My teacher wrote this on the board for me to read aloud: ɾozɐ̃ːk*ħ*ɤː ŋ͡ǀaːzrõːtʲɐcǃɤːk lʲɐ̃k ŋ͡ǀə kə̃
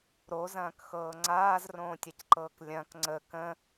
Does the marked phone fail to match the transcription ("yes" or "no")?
yes